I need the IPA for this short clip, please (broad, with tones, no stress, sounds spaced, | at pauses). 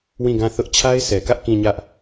w ĩ˦˨ ɡ ã˦˨ θ ʊ˦ ʔ t͡ɕʰ a˦ ɪ̯ s ɛ˨ k ä˦ ʔ k ĩ˦˨ ɲ ä˦ ʔ